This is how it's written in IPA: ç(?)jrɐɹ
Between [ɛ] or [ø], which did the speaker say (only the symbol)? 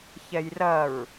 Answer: ɛ